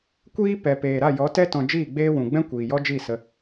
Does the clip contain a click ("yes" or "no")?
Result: no